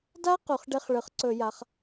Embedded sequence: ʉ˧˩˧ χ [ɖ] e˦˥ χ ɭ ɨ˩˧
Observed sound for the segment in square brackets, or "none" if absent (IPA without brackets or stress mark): ɖ